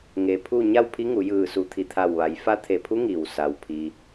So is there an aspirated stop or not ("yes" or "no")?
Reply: yes